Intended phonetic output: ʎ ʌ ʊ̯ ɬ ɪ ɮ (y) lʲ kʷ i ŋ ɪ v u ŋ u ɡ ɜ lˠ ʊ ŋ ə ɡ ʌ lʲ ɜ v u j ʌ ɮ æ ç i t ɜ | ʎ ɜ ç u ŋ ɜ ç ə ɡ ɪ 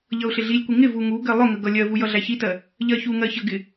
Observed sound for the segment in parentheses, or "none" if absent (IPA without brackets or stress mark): i